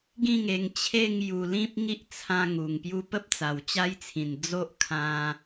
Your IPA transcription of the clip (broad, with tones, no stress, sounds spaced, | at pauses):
ɡ ĩ˥˧ ŋ e˨˩ ŋ t͡ɕʰ e˥˧ ŋ j u˨˩ l ĩ˦ p̚ ŋ i˦ ʔ t͡sʰ ã˧ ŋ u˨˩ ŋ p j u˧ p ə˦ p̚ t͡s a˨˩ w t͡ɕ a˦ j t͡sʰ ĩ˨˩ n d͡z o˦ ʔ kʰ ã˧